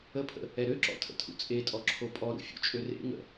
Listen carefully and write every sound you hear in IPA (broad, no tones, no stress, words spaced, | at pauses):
əpʰə̰ | ɛɾøǁɔ̰ tʰə̰tʰṵt͡sʼetʼɔ ǁʰopʼɔɾṵ fʲṵt͡ʃʼørḛŋə̰